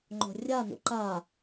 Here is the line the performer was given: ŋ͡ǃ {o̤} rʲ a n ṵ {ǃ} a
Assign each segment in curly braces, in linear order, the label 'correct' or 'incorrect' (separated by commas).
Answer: correct, correct